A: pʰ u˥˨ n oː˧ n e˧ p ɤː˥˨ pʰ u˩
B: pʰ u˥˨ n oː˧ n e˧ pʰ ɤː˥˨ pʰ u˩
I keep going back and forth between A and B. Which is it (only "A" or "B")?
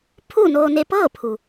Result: A